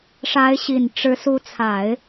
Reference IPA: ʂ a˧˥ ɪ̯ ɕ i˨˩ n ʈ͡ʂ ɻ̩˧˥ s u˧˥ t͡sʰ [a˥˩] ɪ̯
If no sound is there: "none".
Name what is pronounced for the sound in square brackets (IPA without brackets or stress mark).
a˨˩˦